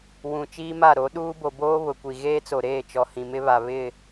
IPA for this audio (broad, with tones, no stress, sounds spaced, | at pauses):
w ũ˨ t͡ʃ iː˦ m a˦˨ ɾ o˨˦ ɗ uː˦ b o˨ b oː˦ β ʊ˨ kʷ i˨ ɣ eː˦ t͡s o˨ ɾ eː˦˨ t͡ʃ ɔ˨ h ĩ˨ m ɪ˦ β a˨ β ɪ˦˨